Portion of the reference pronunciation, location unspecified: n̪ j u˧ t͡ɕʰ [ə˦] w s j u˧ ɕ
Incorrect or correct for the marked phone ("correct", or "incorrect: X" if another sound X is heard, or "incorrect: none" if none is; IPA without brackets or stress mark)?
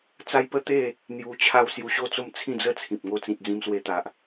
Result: incorrect: a˦